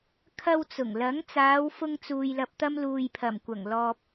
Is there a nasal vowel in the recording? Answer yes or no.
no